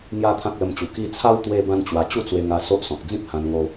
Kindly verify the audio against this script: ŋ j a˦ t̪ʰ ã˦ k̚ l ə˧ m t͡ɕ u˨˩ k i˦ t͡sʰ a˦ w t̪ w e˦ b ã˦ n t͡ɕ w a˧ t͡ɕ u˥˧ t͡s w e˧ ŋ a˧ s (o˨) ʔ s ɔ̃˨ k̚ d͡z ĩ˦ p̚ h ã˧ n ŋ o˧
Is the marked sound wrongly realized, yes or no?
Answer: yes